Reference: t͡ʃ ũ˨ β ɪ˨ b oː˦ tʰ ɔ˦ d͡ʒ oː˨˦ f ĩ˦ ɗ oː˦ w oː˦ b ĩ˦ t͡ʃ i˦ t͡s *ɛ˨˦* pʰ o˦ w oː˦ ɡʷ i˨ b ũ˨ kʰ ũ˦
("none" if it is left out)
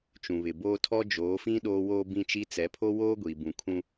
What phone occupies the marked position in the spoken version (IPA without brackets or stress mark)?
ɛ˨˦